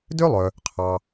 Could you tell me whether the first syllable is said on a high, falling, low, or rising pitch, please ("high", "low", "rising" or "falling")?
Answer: high